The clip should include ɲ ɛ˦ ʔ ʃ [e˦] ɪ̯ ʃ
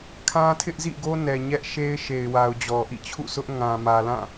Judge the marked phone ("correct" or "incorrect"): correct